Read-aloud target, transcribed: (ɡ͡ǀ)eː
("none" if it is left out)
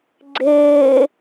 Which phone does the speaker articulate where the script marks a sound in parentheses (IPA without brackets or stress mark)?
ɡ͡ǀ